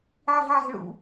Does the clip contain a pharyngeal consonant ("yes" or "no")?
yes